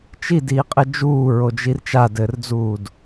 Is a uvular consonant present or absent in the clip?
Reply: present